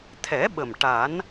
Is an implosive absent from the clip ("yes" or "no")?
no